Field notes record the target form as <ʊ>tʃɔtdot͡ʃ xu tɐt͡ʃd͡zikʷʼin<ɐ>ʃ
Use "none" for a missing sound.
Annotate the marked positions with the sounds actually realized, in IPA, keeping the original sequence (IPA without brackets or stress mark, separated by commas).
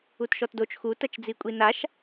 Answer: u, a